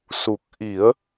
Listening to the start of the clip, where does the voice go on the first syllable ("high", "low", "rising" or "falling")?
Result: low